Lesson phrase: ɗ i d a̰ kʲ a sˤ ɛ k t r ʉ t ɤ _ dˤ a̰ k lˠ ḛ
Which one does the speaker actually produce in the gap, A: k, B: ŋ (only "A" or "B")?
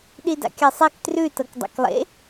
A